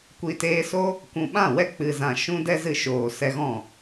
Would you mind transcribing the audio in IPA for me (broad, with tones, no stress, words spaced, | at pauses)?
kʷi˨teː˧so˦ | kʷũ˨ɓã˦˨wɛ˦ k͡pɨ˨zã˨ ʃũ˦dɛ˦ zɨ˧ʃoː˨ sɛ˧ɣɔ̃˦˨